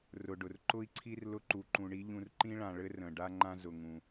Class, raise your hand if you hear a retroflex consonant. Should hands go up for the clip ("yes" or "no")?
yes